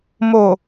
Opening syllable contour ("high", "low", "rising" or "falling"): low